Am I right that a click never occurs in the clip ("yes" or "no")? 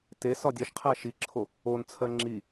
no